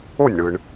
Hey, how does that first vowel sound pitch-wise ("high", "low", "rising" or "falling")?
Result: falling